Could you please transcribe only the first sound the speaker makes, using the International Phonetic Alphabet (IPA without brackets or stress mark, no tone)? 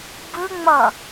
b